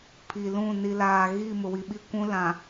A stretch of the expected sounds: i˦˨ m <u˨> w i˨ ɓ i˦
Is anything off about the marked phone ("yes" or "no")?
yes